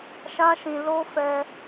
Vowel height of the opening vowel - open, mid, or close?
open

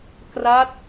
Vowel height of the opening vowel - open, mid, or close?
open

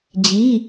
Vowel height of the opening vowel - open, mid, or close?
close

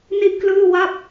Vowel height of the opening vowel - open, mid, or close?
close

